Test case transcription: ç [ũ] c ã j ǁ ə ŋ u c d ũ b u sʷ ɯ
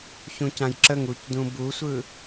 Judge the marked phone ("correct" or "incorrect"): correct